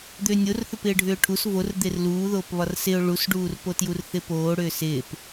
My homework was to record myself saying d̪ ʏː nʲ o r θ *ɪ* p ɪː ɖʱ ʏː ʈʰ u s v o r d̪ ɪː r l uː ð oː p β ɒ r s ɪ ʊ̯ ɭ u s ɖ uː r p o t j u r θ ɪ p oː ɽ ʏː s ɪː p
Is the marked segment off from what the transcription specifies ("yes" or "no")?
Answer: yes